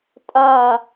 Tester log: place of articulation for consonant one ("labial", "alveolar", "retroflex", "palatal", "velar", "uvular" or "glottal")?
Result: alveolar